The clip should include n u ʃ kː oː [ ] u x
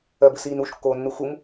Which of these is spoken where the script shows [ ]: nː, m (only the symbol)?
nː